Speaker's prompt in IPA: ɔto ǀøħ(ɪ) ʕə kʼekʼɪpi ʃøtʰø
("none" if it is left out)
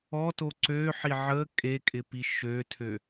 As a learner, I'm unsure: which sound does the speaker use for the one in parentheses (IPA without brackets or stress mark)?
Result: i